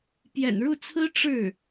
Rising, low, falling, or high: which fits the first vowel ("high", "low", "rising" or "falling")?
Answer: low